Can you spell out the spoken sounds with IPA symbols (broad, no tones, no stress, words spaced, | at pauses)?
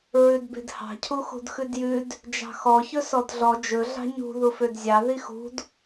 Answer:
ɹʉdbe̤dhɑ̤ cʰuxṳdxʉdjʉd | d͡ʒɑ̤xɔ çɵsɔdɮɔ d͡ʒɵ ɮɑ̤ɲṳ ðufødzʲɑ ðixṳd